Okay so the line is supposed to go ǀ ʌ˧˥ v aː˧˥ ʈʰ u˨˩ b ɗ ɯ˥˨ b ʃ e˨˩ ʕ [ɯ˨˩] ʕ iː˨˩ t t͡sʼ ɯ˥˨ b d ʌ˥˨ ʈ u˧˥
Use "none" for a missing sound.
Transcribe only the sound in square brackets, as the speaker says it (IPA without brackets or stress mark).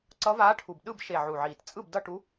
u˨˩